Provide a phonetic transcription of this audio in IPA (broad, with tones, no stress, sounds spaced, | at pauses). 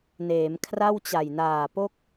n eː˩˦ m kʰ r a˥˩ w t͡ɕ a˨˩ j n aː˨˩ p o˥˩ k̚